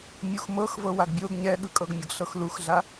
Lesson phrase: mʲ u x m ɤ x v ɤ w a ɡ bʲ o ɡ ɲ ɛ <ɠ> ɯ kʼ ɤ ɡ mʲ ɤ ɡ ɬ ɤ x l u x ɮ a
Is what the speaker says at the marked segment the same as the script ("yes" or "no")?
yes